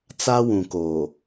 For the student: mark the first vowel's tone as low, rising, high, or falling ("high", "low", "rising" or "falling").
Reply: high